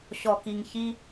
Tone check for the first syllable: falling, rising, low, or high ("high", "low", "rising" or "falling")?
low